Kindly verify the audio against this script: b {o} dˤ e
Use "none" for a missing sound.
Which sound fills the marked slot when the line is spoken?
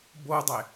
o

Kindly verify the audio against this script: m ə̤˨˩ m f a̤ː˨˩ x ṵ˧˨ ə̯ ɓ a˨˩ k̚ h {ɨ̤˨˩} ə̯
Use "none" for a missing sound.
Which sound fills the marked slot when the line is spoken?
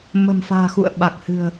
ɨ̤˨˩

